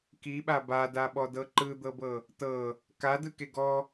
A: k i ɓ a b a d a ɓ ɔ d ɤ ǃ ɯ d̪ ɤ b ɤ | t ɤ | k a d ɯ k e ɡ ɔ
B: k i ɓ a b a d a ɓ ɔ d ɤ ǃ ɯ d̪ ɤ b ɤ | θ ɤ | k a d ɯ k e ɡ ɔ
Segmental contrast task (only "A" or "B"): A